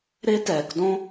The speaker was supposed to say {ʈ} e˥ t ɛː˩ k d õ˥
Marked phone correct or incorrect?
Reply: incorrect